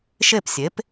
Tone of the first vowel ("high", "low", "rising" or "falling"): falling